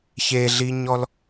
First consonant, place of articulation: palatal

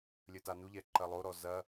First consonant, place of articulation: alveolar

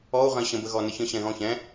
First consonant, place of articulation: uvular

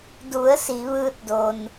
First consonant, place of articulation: alveolar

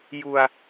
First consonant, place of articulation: palatal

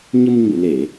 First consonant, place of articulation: palatal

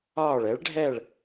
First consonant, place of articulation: retroflex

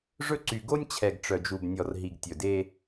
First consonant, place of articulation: retroflex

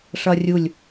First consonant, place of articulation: retroflex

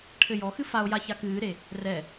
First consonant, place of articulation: retroflex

